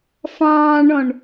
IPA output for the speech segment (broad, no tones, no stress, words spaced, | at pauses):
fɑ̃ːɳɔ̃ɳ